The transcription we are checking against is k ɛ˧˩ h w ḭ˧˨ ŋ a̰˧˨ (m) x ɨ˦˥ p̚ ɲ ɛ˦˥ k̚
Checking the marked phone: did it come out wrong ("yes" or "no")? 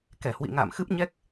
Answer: no